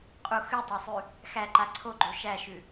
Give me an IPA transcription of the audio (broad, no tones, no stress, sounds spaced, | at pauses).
qʼ u x ʉ tˤ æ sˤ ʉ | x æ ǃ a ǀʰ o ɡ͡ǃ o ʃ æ ʃ ʉ